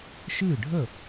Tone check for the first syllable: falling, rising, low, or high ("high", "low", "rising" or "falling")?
falling